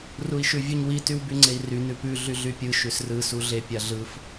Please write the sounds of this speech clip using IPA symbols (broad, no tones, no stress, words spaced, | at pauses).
rui̯ʃʉvʲuɲwi tywbyŋ͡ǀei̯ry nʉpʉ ɮyɮypʲɯ ʃʉsrɯ suɮe pʲaɮɯf